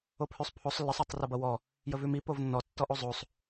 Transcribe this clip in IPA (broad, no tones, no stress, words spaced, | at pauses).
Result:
opʰʉsˤpʰosˤ lːəsˤotˤ rʌbʌwɔ | jəvʉmi povnːɔ tːɔʔozˤosˤ